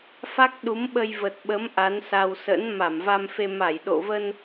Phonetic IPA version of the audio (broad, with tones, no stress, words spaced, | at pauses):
fa˦˥k̚ɗu˨˦mɓə˧j və˨˩t̚ɓə˨˦m ʔa˨˦nsa˧w sə̰˧˥n ma˧˩mva˧mfe˧ ma˧˩jɗo̰˧˨və˧n